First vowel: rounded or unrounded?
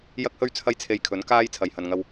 unrounded